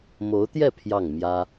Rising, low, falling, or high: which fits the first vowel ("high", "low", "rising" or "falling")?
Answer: rising